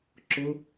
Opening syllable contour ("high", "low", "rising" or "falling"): high